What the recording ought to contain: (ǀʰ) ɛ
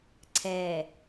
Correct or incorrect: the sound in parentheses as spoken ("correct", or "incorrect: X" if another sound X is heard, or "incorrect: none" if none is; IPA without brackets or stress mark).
correct